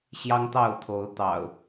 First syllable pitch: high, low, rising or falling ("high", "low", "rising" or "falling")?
high